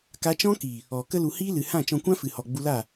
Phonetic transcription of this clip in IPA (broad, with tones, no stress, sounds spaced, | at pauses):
k a˧ t͡ʃ ɔ̃˦ k i˨ | ɔ˨ k ə˧ l u˨ h iː˦ l ɨ˨ h ã˦˨ t͡ʃ ɔ̃˧ kʷ ã˦ f ɨ˨ h ɔ˨ ɡ͡b u˧ l a˦˨